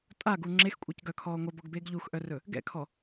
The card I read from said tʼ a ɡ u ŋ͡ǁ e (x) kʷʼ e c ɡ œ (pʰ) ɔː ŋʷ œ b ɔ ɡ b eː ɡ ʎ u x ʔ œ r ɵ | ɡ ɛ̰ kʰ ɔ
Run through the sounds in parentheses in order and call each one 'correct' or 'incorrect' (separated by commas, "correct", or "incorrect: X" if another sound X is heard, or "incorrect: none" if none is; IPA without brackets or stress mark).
correct, incorrect: kʰ